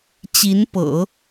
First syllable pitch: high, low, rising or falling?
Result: rising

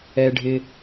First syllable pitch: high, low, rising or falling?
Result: high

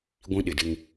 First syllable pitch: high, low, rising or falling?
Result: high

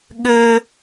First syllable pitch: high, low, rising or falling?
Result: high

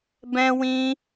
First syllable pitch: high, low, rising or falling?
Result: high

